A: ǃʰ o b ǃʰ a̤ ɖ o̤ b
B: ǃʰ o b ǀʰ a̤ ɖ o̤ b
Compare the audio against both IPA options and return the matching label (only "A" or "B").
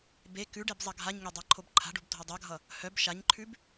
A